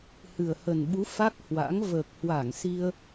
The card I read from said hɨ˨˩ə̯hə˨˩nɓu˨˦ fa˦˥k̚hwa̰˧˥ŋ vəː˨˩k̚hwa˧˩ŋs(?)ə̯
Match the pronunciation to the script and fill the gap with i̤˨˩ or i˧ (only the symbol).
i˧